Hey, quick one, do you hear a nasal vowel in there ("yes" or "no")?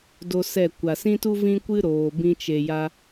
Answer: yes